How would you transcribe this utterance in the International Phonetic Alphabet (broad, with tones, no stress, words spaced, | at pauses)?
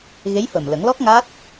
ɣe˧˥jfə˨˩mlə˨˩˦ŋlɔ˦˥k̚ ŋa˦˥t̚